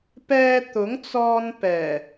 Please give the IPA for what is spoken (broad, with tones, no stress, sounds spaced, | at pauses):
p ɛː˧ t̪ ʊ˨˥ ŋ t͡s ɔː˧ n p ɛː˨˩